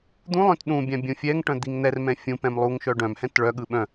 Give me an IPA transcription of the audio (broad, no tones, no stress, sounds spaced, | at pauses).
d̪ ũ lˠ œ̃ t ɗ ũ bʲ ã bʲ ũ fʲ ɛ ŋ ʈ œ̃ d̪ i ŋ n̪ ɛ r m ɛ̃ fʲ ũ p ɛ̃ m lˠ u ŋ ʃ œ ɖ œ̃ m h ɛ̃ t ɭ œ ɠ ɯ ɓ œ̃